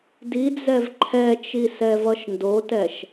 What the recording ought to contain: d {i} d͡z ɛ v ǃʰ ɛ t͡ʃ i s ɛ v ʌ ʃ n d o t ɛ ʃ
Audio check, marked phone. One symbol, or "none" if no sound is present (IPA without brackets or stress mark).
i